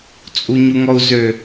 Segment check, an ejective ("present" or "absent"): present